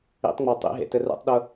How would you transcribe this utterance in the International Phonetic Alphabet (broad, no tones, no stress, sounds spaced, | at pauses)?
ḭ tˤ ŋ͡m ɒ tˤ ḭ ɦ ḛ t ɘ r ṵ tˤ ɗ ʊ